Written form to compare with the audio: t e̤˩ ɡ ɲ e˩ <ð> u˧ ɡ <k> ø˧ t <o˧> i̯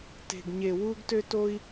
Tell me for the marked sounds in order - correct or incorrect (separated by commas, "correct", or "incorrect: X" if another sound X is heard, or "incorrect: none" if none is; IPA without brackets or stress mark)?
incorrect: w, incorrect: t, correct